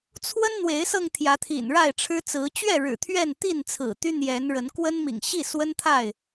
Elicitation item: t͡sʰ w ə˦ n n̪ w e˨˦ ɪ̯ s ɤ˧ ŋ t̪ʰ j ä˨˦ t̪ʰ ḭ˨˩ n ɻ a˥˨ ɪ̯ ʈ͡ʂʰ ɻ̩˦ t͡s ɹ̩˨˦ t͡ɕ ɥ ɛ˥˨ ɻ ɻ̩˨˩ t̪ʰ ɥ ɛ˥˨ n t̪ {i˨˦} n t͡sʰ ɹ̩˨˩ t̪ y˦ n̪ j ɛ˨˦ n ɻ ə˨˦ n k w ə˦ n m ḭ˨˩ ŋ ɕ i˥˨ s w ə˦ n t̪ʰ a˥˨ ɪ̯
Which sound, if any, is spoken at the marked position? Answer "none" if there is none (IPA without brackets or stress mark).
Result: i˥˨